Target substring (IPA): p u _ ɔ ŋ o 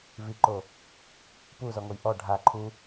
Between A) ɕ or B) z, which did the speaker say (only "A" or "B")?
B